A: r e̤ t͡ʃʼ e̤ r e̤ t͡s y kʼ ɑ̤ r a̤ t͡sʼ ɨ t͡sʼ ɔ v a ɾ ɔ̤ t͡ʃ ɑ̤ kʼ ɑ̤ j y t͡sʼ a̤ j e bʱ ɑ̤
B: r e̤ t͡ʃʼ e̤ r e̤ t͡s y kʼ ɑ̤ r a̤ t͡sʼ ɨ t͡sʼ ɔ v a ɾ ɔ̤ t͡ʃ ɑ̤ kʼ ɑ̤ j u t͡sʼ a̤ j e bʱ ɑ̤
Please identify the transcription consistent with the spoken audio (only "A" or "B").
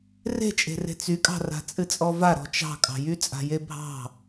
A